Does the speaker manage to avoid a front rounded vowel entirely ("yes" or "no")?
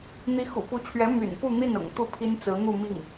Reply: no